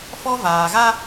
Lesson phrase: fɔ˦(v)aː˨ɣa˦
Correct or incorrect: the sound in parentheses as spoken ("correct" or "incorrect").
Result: correct